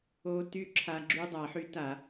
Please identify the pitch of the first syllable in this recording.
high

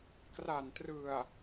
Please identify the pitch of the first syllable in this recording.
low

